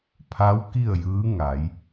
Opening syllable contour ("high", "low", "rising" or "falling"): rising